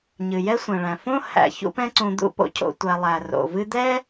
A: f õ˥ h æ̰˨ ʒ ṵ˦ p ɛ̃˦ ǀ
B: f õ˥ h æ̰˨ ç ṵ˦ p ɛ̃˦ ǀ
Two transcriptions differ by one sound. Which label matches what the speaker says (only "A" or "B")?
B